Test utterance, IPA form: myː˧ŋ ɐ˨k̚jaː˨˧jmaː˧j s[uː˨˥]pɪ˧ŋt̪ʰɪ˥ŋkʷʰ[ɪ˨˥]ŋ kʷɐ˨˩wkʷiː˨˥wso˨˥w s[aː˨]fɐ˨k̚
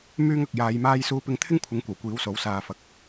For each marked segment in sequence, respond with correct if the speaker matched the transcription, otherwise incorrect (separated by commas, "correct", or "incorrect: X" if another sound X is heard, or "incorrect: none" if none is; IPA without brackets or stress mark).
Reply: incorrect: uː˧, correct, correct